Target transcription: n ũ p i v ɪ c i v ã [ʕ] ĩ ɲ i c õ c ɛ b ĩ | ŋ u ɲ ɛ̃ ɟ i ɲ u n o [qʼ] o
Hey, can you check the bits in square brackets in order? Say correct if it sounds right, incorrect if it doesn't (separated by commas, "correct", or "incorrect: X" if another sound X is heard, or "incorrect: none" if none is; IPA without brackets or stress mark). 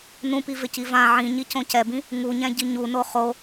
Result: correct, incorrect: χ